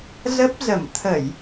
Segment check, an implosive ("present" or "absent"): absent